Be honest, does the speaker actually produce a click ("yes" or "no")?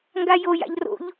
no